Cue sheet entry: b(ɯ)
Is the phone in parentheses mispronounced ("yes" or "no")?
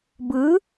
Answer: no